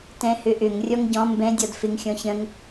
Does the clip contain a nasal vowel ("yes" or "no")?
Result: yes